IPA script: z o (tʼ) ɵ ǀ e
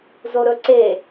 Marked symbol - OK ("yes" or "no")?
no